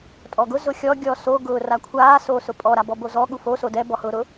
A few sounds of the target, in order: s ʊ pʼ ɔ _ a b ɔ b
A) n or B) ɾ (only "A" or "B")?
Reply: B